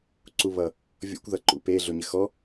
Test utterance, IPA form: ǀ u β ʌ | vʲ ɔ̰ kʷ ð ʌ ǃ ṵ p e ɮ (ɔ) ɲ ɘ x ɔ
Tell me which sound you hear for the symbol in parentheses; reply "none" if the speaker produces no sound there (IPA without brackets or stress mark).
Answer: o